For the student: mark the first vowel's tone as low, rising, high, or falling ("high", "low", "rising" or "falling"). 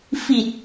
low